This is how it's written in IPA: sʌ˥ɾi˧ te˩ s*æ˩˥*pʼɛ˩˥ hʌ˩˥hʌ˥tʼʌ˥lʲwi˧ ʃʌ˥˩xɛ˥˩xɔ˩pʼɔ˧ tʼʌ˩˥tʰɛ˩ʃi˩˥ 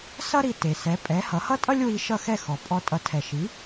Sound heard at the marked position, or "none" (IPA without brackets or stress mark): ɛ˩˥